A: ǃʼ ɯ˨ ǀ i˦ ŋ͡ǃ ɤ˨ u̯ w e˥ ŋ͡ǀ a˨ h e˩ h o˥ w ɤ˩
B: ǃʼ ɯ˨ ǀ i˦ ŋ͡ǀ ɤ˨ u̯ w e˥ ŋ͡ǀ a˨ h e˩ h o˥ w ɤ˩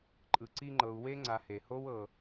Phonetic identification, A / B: A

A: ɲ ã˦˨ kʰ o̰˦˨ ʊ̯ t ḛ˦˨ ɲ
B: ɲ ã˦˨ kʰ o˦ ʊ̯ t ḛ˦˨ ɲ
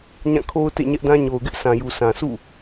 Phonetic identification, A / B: B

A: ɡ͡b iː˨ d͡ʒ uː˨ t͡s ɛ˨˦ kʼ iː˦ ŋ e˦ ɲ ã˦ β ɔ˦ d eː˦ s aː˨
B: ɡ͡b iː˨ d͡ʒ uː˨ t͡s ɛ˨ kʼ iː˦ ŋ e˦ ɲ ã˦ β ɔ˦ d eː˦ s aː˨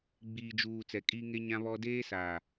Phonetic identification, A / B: A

